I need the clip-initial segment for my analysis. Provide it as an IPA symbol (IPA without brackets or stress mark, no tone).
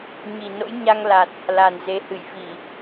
ɲ